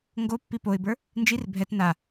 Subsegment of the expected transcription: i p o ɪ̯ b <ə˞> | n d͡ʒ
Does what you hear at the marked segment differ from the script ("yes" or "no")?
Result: no